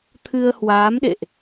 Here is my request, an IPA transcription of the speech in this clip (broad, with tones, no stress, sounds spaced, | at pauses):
t̪ʰ ɨ˧ ə̯ h w aː˨˦ m ɗ ḛ˧˨ ʔ